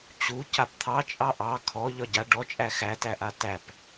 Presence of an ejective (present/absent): present